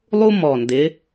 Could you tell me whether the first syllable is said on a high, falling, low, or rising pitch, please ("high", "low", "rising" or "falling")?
high